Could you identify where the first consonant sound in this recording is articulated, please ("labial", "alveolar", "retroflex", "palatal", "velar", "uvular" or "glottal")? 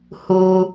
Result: glottal